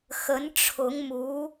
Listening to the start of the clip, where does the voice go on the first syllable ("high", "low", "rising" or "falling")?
rising